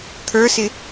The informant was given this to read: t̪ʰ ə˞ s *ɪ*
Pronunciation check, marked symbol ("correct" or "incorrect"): correct